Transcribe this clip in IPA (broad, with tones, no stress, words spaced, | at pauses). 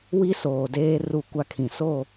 wi˦soː˨deː˦ ru˦˨ kʷa˦ kʰĩ˨ so˦˨